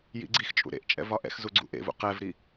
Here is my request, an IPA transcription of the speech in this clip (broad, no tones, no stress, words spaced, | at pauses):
jḭɡ͡ǀixt͡ʃʼṵ ɾḛʔt͡ʃʼɛ̰v ɒʔɛ̰xzu ɡ͡ǀṵʔḛvṵ qɛvɾi